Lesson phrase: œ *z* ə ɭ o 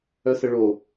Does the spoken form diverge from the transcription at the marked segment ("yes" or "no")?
yes